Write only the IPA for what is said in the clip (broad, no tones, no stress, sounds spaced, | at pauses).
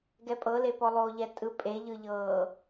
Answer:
ɡ ɛ pʼ ɤ l e p ɔ lˠ oː ʎ ɛ tʼ ɯ pʼ e ʎ ɯ ʎ ɤː